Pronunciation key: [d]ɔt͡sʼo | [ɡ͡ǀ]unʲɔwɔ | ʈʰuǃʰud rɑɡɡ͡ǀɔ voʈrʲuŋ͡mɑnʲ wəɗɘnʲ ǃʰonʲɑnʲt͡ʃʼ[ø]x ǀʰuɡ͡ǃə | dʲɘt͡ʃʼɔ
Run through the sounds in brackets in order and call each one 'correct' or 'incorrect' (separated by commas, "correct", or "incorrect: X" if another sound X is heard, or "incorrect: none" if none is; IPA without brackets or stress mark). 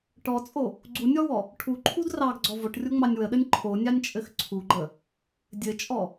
incorrect: ʈ, correct, incorrect: ɘ